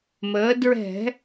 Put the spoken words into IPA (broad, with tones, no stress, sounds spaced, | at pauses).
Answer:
m əː˩˧ d ɹ ɛ̤˧˩˧